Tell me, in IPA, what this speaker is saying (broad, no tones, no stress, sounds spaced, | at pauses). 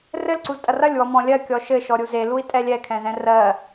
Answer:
r ɘ l ǀ u z tʼ ɐ r ɐ lʲ w ɔ m ɔ̃ lʲ ɜ kʲ ɔ ʃ ɘ ʃ ɔ ɾʲ u z e l u i̯ tʼ ɛ lʲ ɛ kʰ ɛ̃ z ɛ̃ r ɜ